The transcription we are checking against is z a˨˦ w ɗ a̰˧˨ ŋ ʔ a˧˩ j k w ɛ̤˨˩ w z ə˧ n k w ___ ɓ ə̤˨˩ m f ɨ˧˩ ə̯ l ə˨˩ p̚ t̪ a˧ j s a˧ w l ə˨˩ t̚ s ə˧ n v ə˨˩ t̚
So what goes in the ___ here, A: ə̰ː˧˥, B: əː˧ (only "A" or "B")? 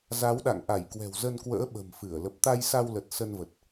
A